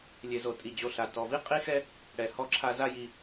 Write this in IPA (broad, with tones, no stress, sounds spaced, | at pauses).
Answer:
lʲ e˨ z o˨ tʼ i˨ d͡ʑ o˨ ɬ a˨ t ɔ˨ v i˦ qʼ i˦ x ɛ˦ | ɽ ɛ˨ h ɔ˦ ǁʰ a˦ z a˦ j i˨